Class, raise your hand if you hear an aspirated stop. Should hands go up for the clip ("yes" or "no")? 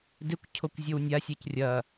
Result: yes